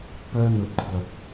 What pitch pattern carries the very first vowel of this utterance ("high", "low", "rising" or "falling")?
high